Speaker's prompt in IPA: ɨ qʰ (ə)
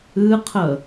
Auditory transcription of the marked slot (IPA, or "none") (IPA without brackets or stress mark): ə